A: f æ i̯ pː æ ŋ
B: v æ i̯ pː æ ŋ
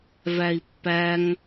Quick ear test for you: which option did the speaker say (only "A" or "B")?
B